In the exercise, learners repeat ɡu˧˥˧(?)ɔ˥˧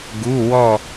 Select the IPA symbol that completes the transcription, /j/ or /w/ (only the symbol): w